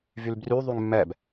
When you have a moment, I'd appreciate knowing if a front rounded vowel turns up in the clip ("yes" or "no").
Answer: yes